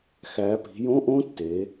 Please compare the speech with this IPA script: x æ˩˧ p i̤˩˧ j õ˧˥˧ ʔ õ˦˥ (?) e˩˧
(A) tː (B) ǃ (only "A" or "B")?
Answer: A